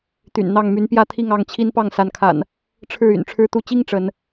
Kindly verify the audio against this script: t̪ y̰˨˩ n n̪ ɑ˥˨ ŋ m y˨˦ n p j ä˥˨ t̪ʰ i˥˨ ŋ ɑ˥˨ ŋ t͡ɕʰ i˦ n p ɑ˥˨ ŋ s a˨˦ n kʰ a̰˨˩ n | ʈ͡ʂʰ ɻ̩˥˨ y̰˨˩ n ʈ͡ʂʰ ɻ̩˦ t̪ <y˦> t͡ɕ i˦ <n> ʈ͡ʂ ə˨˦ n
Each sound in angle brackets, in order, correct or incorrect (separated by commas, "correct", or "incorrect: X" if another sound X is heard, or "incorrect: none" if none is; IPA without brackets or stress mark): incorrect: u˦, incorrect: ŋ